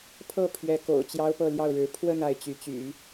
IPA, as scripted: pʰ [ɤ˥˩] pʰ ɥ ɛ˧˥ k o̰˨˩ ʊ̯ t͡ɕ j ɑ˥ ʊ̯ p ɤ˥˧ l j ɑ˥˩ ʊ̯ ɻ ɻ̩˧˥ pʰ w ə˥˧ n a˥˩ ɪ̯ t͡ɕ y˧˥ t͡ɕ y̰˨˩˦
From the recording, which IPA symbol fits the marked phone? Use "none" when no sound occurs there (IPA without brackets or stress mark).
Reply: ɤ˥˩